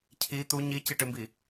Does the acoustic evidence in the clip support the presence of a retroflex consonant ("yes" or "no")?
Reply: yes